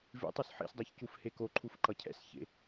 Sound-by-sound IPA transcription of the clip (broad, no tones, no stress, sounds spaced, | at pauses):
v ḭ tˤ o s ħ ḭ s dˤ a ç c u f h e k o ǃʰ u f ǃ ʌ cʰ ɛ̰ s ç ḛ